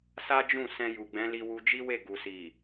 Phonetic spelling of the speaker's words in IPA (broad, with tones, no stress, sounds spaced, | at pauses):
s a˦ d͡ʒ ũ˦˨ s ɛ̃˧ j u˨ ɡ͡b ɛ̃˨˦ l i˧ w u˧ d͡ʒ i˦ w e˦˨ ɡ u˨ s i˨